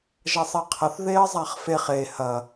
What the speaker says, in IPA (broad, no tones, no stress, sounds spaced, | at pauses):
ʒ ɐ sˤ e qʰ ɐ θ ð e ə̯ zˤ a χ f e χ e h ɐ